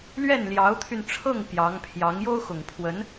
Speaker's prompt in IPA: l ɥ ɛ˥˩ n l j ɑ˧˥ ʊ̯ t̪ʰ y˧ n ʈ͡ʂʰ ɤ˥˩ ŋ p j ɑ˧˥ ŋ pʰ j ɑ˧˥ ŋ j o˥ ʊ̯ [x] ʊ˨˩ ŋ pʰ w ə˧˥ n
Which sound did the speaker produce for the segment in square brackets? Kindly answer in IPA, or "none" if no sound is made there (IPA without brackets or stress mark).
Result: x